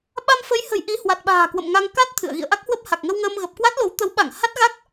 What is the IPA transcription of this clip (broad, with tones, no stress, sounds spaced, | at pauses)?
ɓ a˧ m f ə˨˦ j h ə̤˨˩ j ʔ i˨˦ h w a˨˩ t̚ ɓ a̤ː˨˩ k w ə̰˧˨ m ŋ a˧ ŋ k a˦˥ t̚ t̪ʰ ɨ̰˧˨ ə̯ ɣ ḭ˧˨ ə̯ ʔ a˦˥ k̚ h w ə˦˥ p̚ h a˨˩ k̚ ŋ ə˧ w ŋ əː˧ m ɣ ə˨˩ p̚ k w a˦˥ t̚ l o˨˦ w t̪ ə˨˦ w ɓ a˧˩ ŋ h a˦˥ t̚ ɣ a˦˥ k̚